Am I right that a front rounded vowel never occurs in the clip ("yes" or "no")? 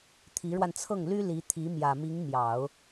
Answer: no